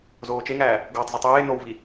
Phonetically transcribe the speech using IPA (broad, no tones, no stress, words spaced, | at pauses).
zoːt͡ʃeŋæː | ɡwɒtˤzetˤ eː nowvi